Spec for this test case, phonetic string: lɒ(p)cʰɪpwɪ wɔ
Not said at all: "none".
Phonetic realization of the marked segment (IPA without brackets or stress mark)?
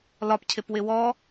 p